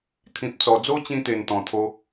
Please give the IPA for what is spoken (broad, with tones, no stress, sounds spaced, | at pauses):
t̪ʰ ĩ˨ p̚ t͡s ɔ˨˩ d͡z o˦ t͡ɕ ĩ˧ t̪ e˨˩ n t̪ ɔ̃˨˩ t̪ʰ o˧